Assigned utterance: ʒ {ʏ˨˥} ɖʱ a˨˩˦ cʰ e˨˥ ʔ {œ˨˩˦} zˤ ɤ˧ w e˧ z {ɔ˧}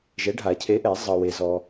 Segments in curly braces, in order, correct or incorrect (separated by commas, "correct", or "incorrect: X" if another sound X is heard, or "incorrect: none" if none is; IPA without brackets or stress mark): incorrect: ɛ˨˥, incorrect: ɛ˨˩˦, correct